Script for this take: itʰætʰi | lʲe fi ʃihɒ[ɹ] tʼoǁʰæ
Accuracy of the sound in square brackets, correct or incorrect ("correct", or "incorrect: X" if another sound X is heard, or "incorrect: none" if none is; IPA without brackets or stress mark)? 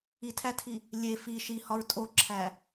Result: correct